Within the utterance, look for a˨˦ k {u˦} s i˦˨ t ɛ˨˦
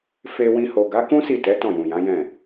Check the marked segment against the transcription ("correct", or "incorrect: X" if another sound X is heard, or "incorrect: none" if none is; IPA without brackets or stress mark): incorrect: ũ˦